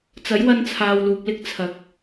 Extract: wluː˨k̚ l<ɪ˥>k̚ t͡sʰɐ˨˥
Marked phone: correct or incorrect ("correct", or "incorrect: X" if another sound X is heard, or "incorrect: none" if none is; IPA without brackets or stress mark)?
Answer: correct